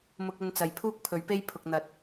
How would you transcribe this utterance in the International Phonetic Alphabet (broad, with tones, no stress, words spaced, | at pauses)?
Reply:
mʊ˧k̚ɵ˧nt͡sɐ˨j pʰuː˥k̚pʰɵ˨˥ɥpe˥jpʰʊ˨k̚ n̪ɐ˨˥t̚